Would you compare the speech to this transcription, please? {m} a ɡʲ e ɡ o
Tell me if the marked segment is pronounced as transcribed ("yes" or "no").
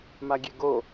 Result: yes